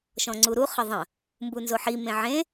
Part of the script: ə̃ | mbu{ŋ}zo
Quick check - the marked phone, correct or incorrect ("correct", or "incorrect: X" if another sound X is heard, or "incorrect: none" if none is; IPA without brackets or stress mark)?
incorrect: n